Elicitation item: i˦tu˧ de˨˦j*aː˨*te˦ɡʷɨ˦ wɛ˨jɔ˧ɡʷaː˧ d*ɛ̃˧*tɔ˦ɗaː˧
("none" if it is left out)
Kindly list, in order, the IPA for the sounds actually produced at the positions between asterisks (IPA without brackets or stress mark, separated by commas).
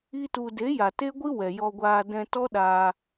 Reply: a˨, ɛ̃˧